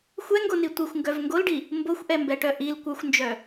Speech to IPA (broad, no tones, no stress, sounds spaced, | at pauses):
xʷ ɛ ŋ ɡ o n i tʷ i xʷ ŋ ɡ œ v ŋ ɡ o l ɖ i | m b o xʷ ʔ ɛ m b ɛ ʈ œ ʔ i l kʷ œ xʷ n d͡ʒ œ